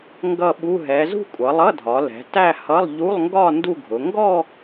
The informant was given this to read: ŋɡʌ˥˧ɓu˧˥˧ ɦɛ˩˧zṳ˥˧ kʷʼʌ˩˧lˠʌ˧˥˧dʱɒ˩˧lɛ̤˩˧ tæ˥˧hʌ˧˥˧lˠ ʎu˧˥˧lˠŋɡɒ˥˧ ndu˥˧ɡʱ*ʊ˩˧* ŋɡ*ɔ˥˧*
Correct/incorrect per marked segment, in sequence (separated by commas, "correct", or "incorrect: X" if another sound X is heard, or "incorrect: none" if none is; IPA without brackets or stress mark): correct, correct